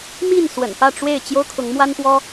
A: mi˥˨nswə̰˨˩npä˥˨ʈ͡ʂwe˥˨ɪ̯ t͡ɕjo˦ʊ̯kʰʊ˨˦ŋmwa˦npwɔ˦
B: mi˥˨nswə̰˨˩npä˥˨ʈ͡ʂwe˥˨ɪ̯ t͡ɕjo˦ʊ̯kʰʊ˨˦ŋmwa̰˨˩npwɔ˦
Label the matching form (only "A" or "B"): A